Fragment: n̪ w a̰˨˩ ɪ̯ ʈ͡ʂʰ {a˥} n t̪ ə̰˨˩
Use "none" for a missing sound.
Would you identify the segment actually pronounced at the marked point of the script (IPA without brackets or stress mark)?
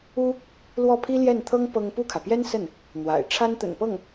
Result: a˥